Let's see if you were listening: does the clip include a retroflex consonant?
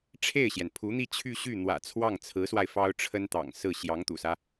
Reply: yes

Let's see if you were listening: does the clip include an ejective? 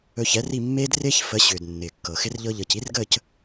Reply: no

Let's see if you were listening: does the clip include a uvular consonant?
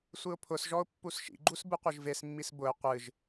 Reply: yes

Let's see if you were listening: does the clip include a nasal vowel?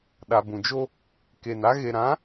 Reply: yes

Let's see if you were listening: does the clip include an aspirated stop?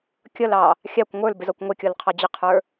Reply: yes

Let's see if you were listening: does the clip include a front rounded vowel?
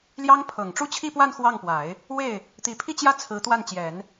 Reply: no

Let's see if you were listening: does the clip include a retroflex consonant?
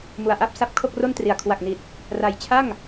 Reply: no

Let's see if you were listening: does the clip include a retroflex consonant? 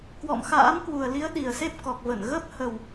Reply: no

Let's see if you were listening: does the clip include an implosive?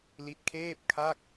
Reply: no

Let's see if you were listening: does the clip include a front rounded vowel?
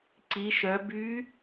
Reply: yes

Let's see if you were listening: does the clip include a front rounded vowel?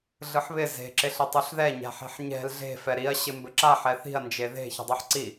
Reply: no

